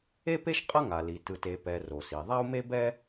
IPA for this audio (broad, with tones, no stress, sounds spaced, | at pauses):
e˥ p e˥ ʃ qʼ ʌ˥ ŋ a˩ l i˩ t ɯ˩ t e˩ p ɛ˩ r o˩ s i˩ ðˤ a˥ u̯ m e˥ b ɛ˥